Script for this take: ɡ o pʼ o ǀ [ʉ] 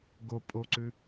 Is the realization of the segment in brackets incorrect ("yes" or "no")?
no